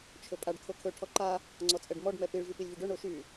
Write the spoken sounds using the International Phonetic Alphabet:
t͡ʃʰ ɵ pʼ a ɖ kʰ o kʰ ɵ ʈʰ ɔ ǃ a | ŋ͡ǀ ɔ t͡sʼ ɛ ɖ m ɔ ɖ m ɛ p i ɭ v y p i lʲ v i ɖ ɵ ɳ o ʃ y

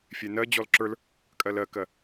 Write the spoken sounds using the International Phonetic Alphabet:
fʲ ɛ n ɜ d͡ʑ ɔ l ǁ ə˞ l | kʼ ɜ l ɜ k ɜ

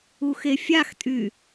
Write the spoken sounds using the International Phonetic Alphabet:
u x e fʲ a x tʼ y

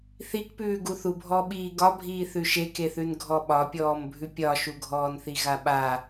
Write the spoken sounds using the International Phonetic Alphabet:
θ i k p ʉː ɡ u θ u bʱ ɔ ɓ iː ɡ ɒ bʱ iː θ ʉ ʃ e k e θ ʉ n ɡʱ ɔ ɓ ɒ pʲ ɔː m bʱ ʉ pʲ ɒ ʃ u ɡʱ ɔː n θ i ɣ a ɓ a

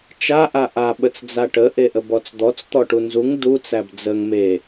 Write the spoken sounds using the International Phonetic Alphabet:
t͡ʃ a ʔ a ʔ a ɓ ə t͡s d͡z a ʈ ə ʔ e ʔ ə b ɔ t͡s d̪ ɔ t͡s t̪ ɔ ʈ u n z u ŋ d u t͡s æ b d͡z ə ŋ m e

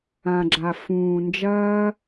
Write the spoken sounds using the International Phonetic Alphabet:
ã˨ ɡ͡ǁ a˨ f ũː˨ n d͡ʒ ɐː˦

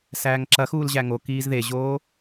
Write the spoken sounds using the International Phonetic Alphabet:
s æː ŋ ǁ ɐ x uː l ʑ æ ŋ o k iː z ð e ʑ oː

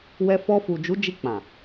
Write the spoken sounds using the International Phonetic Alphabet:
w ɛ˧ f ɔ˧ f u˨ d͡ʒ u˨˦ d͡ʒ i˧ k͡p ã˨

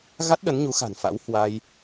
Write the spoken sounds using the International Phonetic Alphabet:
ɣ a˦˥ t̚ ɗ ə˨˦ n ɲ u˨˦ x a̤˨˩ n f a̰˧˥ w h w a˧ j

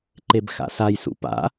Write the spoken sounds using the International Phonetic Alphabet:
ǃ e b x a̰ s a j s ṵ p a̰

